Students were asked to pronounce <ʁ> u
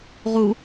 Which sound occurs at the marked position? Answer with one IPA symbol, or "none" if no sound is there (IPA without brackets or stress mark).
ʁ